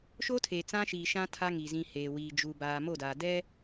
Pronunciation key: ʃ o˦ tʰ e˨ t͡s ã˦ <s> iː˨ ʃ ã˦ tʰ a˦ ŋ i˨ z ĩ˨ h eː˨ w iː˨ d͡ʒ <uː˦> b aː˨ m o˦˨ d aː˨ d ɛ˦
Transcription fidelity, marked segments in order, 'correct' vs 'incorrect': incorrect, incorrect

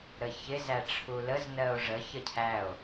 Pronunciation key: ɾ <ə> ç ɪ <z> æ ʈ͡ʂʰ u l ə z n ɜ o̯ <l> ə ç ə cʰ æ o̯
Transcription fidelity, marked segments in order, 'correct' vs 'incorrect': correct, correct, incorrect

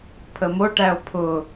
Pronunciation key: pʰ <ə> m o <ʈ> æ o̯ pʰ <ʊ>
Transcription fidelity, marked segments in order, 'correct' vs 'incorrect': correct, correct, correct

